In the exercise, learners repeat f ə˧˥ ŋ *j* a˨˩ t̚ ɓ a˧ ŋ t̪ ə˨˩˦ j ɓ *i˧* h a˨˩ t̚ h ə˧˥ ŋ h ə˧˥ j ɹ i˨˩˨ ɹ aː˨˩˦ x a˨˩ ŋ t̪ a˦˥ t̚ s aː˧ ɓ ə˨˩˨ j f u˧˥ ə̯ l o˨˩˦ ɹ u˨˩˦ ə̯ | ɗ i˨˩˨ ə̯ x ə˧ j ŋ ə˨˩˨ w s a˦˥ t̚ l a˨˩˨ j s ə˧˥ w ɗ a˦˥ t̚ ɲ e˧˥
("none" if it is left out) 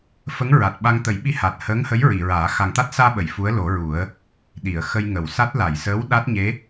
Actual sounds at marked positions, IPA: ɹ, i˧

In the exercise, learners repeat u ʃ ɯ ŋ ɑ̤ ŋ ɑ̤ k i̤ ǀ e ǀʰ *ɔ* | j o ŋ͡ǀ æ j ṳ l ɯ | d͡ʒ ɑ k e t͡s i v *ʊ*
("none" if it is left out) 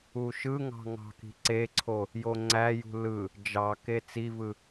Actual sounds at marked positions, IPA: o, ɯ

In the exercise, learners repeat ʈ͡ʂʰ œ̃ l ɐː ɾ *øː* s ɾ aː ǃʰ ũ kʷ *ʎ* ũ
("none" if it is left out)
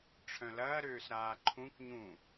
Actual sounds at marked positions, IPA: øː, ɲ

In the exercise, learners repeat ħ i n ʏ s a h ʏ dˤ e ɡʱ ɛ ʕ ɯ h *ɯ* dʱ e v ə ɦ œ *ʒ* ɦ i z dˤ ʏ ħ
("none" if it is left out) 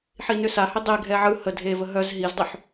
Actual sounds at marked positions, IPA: ə, z

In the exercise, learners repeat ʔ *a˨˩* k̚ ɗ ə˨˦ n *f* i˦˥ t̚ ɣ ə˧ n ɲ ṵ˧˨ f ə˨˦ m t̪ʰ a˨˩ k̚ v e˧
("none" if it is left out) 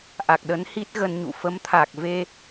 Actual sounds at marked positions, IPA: a˨˩, h

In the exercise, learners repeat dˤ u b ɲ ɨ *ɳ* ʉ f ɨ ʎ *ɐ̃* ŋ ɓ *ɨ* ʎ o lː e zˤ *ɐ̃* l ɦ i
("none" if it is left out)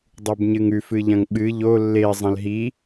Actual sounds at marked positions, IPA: ŋ, ɐ̃, ɨ, ɐ̃

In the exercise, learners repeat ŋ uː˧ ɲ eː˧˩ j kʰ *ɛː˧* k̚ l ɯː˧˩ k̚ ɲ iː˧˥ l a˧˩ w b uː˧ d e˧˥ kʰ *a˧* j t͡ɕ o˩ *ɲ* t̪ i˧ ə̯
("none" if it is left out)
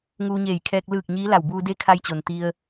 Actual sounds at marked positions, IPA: ɛː˧, a˧, n

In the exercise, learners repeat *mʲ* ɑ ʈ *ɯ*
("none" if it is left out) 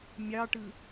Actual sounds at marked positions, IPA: mʲ, ɯ

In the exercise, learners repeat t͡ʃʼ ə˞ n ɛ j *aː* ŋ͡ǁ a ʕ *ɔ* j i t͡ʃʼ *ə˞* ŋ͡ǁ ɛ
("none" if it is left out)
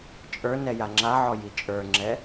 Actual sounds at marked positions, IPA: a, ɔ, ə˞

